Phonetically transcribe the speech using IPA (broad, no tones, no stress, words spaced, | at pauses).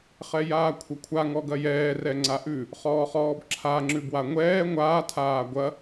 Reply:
χɛjaːkʷʰɐkʷʰa ŋɔɡɐjɛː rɛŋ͡ǀaʔʉ | χɔːχɔːbǁʰa ŋ͡ǁʉbwaŋʷɛː ŋʷaː tʰaːɡʷɐ